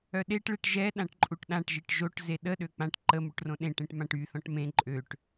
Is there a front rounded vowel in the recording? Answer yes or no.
yes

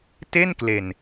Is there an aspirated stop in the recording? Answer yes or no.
no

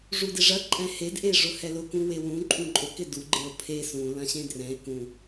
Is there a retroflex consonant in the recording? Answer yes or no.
yes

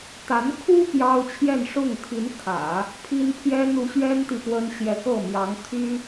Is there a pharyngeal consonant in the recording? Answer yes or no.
no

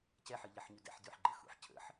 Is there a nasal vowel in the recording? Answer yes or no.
no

